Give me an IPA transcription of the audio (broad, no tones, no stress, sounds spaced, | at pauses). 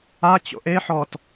a t͡ɕ o̰ ʔ e ħ ɔ t